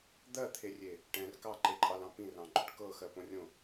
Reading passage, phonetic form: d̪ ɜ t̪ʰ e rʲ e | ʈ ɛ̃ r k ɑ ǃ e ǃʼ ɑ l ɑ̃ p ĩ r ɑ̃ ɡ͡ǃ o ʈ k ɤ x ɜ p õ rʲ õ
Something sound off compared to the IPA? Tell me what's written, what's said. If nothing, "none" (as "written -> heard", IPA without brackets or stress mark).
none